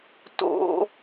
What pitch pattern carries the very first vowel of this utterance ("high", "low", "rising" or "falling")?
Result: high